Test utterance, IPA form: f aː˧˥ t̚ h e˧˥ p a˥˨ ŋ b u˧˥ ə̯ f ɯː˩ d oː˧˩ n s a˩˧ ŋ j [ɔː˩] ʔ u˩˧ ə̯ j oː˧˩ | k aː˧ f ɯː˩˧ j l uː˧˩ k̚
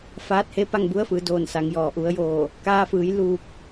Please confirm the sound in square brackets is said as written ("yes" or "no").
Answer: yes